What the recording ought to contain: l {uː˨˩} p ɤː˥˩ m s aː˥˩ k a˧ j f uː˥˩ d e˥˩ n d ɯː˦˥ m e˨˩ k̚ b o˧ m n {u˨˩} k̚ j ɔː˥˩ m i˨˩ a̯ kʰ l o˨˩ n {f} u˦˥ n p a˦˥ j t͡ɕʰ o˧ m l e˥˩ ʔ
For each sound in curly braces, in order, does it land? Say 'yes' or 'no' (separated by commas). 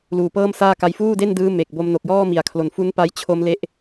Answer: yes, no, yes